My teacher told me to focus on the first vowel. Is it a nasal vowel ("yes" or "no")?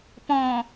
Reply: yes